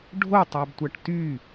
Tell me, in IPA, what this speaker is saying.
ɖʱ o tˤ æ b tʷ æ ʈ t y

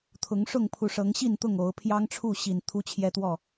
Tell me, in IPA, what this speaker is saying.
t̪ʰ ʊ˨˦ ŋ ʂ ʊ˥˨ ŋ pʰ u˨˦ ʂ ɤ˨˦ ŋ ɕ i˥˨ n t̪ ʊ˥˨ ŋ o˨˦ ʊ̯ pʰ j ɑ˦ ŋ ʈ͡ʂʰ u˥˨ ɕ i˨˩ n t̪ʰ u˦ t͡ɕʰ j ɛ˦ t̪ w ɔ˥˨

